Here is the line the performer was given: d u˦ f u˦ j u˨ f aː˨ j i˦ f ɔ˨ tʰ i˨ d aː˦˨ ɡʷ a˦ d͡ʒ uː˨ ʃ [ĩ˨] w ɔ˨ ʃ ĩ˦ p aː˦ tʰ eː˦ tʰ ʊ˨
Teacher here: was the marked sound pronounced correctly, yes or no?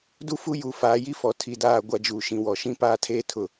yes